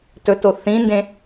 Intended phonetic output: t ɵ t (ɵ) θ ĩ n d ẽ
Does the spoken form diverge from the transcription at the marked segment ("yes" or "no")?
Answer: yes